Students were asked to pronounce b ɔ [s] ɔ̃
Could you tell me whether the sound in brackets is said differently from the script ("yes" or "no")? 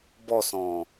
no